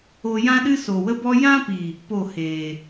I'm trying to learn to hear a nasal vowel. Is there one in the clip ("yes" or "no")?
yes